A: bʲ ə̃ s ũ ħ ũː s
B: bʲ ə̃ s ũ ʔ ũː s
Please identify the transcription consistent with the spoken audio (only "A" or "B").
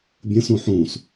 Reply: A